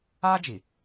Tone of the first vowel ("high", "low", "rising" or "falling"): high